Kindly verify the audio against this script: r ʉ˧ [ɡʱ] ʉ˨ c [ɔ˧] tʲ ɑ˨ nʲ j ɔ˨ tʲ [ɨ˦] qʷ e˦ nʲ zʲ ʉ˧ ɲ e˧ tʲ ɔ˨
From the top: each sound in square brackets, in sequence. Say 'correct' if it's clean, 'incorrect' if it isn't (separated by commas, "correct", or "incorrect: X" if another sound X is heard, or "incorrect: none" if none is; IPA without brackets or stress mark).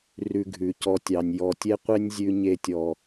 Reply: correct, correct, incorrect: e˦